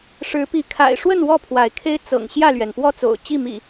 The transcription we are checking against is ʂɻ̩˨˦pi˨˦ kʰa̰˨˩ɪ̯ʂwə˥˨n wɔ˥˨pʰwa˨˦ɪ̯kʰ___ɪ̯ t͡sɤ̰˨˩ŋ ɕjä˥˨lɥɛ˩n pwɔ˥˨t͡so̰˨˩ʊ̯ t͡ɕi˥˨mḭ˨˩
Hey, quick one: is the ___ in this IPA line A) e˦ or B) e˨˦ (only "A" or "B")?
A